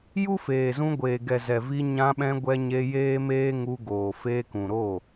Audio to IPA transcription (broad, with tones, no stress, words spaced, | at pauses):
ju˦feː˨zũ˧ ɡʷeː˨ɡɛ˨ zɛ˨vi˧ ɲã˧ɓɛ̃˧ ɡʷɛ˧ɲe˧ jeː˦meː˦ŋu˧ɡoː˨ feː˧kũ˨ɾoː˦˨